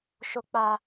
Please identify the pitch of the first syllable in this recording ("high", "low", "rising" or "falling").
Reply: high